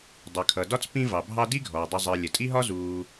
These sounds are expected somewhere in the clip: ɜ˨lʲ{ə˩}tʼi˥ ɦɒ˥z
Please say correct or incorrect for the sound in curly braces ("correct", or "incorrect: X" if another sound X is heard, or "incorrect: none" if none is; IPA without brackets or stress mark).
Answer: correct